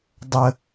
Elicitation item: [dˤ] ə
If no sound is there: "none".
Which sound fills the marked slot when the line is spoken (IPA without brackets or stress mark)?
dˤ